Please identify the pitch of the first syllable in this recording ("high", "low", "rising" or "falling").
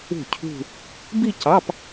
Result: falling